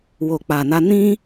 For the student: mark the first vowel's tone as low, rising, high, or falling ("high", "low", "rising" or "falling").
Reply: low